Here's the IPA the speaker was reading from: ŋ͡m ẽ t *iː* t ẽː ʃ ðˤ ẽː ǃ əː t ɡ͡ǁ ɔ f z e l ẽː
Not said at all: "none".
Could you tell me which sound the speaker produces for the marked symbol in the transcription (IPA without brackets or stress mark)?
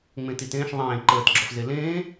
i